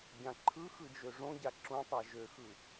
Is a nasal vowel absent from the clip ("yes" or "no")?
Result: no